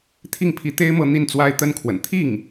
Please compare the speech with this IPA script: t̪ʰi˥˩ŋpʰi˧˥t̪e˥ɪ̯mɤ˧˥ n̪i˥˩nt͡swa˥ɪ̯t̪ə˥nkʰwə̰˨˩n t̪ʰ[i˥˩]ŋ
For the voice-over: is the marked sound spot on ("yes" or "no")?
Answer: yes